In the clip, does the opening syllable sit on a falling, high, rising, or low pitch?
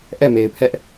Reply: falling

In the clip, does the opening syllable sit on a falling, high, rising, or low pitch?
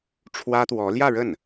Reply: high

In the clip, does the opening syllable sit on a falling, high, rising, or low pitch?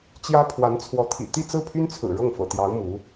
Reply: high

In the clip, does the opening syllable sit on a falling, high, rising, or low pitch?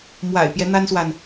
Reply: low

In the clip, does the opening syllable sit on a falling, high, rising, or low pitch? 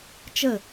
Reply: falling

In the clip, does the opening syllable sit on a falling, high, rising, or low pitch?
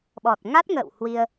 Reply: low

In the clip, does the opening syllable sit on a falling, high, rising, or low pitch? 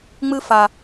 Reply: high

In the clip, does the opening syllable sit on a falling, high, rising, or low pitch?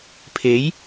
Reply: rising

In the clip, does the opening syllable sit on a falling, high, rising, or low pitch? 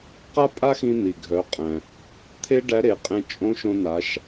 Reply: high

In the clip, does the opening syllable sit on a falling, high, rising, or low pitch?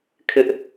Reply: high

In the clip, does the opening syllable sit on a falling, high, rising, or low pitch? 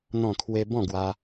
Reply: falling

